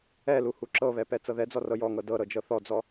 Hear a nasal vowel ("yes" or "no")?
no